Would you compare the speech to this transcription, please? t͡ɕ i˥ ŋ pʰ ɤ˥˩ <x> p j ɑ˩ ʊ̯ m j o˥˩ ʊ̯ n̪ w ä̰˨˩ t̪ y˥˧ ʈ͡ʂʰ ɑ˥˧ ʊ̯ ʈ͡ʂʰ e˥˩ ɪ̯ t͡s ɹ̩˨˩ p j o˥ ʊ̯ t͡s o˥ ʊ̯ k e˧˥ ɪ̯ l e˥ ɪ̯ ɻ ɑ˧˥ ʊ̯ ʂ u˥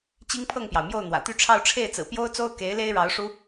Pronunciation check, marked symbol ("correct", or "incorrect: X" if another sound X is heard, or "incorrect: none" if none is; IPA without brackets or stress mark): incorrect: ŋ